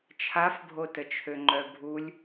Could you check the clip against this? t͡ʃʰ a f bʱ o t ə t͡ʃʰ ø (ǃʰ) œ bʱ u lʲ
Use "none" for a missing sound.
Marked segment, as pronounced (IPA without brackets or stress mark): ŋ͡ǃ